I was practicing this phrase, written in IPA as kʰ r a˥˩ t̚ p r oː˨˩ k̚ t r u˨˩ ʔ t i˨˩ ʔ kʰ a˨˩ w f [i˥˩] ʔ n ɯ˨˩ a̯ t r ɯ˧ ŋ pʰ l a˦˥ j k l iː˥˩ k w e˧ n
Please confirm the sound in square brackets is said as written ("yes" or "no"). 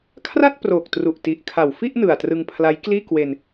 yes